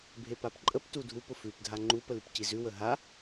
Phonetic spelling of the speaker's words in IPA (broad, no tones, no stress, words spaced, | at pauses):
bʱepapǃʼəp tudʱup ʊfʉp dʱaŋ͡ǃup əlʉpcizʉ wəɦa